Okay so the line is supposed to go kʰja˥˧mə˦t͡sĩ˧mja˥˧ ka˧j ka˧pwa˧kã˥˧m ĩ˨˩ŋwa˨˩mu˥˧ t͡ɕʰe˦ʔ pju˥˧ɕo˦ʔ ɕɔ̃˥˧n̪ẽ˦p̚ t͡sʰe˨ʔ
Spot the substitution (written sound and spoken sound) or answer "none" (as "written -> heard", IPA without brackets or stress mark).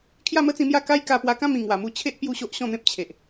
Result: t͡sʰ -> t͡ɕʰ